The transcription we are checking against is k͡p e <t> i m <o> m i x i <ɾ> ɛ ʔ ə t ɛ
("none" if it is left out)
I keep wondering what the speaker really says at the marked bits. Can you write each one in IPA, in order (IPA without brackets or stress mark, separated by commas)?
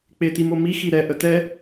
t, o, ɾ